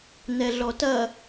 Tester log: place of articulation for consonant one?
alveolar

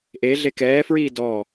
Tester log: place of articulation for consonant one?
glottal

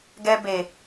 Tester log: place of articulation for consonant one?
velar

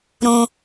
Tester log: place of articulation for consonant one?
alveolar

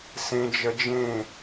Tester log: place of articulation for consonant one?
alveolar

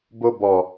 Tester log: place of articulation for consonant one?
labial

